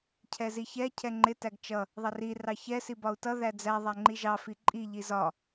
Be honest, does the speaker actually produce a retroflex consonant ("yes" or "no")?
no